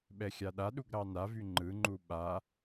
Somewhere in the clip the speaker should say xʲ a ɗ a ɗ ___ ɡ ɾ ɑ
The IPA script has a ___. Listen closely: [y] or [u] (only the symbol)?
u